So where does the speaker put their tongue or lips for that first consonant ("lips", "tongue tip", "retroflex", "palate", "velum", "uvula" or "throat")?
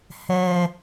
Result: throat